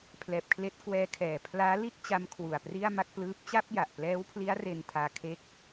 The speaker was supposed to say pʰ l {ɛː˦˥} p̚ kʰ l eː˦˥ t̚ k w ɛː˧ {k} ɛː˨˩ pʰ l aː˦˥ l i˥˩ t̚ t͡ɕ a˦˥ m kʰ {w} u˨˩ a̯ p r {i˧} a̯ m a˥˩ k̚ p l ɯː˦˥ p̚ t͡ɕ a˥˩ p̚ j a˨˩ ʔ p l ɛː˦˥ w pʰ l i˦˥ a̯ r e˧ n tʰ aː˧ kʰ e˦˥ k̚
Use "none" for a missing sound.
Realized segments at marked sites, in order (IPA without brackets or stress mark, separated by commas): ɛː˨˩, kʰ, w, i˥˩